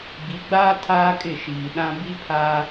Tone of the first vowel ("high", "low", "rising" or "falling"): rising